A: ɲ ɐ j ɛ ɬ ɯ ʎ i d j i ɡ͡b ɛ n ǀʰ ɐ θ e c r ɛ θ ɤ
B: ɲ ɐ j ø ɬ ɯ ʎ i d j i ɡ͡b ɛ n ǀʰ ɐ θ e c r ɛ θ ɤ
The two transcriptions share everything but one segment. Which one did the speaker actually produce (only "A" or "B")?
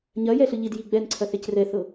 A